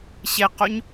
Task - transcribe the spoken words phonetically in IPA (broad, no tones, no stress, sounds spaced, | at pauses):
ɕ e q o ɲ